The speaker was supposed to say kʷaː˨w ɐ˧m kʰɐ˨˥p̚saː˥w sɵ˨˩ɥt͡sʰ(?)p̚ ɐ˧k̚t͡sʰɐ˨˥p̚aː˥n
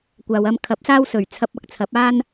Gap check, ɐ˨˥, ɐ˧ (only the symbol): ɐ˧